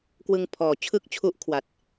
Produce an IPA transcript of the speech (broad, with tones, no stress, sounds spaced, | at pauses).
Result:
k w ɯ˧ ŋ pʰ ɔː˨˩ t͡ɕʰ ɯ˥˩ k̚ t͡ɕʰ u˦˥ ʔ kʰ w a˨˩ t̚